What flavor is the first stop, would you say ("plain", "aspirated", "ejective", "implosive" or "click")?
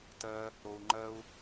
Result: plain